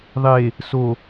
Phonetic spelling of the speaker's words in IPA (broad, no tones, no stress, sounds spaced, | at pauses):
ðˤ e | s o